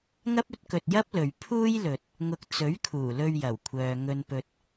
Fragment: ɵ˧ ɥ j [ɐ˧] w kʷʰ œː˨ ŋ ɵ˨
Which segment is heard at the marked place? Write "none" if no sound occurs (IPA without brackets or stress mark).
ɐ˨˩